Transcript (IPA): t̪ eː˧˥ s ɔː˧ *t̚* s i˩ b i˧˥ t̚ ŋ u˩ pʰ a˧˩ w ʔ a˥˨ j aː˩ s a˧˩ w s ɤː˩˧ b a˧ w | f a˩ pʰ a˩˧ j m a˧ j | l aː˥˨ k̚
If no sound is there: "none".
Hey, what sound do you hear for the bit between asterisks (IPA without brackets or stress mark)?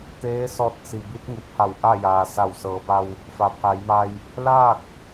t̚